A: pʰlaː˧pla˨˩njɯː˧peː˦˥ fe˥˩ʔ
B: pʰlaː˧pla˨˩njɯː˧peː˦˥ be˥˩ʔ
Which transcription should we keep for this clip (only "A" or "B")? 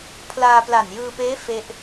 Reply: A